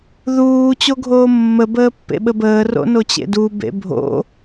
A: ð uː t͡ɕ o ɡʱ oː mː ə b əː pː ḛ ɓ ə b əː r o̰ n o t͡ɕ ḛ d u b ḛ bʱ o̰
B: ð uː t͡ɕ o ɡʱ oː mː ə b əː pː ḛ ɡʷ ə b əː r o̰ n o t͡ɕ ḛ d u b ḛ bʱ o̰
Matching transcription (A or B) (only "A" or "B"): A